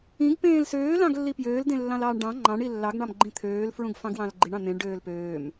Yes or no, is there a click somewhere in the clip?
yes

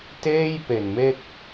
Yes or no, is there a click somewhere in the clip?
no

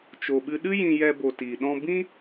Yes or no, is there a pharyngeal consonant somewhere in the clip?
no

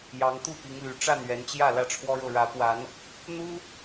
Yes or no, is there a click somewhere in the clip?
no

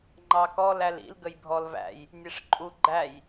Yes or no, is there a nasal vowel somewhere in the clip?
no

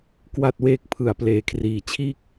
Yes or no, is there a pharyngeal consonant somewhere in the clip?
no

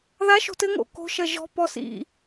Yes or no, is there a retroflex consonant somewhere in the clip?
no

